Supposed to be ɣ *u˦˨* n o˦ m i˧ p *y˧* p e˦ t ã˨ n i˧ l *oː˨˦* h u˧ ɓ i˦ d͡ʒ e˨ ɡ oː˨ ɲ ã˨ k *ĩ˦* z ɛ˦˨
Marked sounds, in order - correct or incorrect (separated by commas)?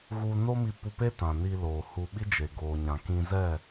incorrect, incorrect, incorrect, incorrect